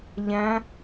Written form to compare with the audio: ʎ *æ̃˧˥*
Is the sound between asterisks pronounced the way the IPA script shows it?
no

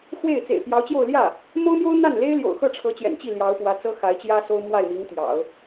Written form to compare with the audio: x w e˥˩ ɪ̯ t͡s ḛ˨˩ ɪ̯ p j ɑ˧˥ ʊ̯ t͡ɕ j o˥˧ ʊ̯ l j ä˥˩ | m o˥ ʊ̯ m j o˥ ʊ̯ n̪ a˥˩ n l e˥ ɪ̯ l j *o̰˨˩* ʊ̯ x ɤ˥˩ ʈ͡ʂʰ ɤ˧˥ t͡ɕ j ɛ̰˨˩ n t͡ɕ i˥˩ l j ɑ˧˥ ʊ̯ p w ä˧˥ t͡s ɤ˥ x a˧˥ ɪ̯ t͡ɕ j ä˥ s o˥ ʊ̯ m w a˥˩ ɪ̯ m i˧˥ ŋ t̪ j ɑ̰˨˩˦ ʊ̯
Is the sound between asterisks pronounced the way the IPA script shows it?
yes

